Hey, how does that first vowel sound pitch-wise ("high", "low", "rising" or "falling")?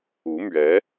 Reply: rising